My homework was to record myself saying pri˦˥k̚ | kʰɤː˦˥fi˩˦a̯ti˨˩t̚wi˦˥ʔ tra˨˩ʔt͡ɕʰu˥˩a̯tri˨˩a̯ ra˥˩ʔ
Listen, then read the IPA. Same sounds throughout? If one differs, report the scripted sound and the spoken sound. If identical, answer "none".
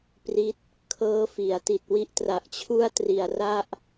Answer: k̚ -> t̚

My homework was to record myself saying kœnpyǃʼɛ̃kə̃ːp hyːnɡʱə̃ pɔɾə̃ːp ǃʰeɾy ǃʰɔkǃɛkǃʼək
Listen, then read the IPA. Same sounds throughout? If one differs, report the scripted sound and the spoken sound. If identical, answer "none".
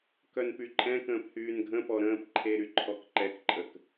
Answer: none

